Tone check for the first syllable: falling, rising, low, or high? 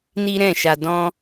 high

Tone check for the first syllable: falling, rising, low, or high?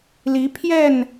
rising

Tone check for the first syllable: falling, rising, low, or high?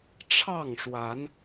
falling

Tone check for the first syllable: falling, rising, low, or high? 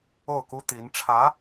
falling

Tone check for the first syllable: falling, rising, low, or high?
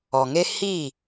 low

